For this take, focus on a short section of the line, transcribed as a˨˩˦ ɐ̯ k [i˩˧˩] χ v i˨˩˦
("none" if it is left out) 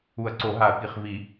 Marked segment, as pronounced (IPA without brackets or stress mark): i˩˧˩